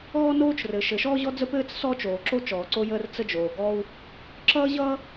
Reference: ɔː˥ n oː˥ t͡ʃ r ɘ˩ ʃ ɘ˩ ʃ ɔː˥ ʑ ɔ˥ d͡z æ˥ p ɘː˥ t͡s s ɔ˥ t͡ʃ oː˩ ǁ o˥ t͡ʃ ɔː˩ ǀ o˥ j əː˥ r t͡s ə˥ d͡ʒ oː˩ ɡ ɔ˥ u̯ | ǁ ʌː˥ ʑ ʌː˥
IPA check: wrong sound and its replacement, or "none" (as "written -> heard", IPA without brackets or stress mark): æ˥ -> ə˥